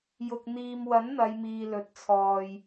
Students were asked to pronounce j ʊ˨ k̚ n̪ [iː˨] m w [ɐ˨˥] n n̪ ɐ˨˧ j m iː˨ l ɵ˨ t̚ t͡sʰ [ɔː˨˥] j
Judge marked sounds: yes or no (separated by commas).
yes, yes, no